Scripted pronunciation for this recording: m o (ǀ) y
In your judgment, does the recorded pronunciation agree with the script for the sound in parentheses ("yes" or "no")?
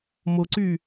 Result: yes